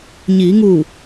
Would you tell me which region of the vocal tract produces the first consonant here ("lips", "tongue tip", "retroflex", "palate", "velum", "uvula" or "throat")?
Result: palate